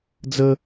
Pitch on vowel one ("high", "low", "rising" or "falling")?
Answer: high